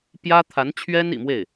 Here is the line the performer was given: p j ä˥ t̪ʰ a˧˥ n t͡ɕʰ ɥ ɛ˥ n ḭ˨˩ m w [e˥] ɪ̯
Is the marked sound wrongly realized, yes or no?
yes